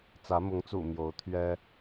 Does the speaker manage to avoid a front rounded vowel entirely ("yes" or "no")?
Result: yes